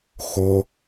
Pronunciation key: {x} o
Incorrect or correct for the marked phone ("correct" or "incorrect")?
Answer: correct